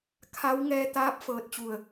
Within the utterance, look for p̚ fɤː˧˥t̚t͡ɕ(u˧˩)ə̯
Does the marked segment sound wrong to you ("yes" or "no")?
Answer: no